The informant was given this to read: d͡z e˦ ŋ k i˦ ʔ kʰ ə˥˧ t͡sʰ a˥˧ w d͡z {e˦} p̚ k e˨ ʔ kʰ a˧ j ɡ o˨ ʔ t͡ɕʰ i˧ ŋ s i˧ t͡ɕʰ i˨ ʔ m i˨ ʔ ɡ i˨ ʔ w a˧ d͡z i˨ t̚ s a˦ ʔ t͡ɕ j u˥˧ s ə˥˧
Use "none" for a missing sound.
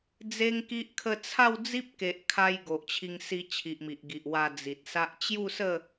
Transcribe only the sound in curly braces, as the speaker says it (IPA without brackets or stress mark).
i˦